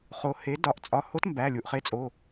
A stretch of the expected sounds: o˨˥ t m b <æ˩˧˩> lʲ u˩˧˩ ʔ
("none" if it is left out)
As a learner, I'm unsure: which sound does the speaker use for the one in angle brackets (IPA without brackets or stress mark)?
æ˩˧˩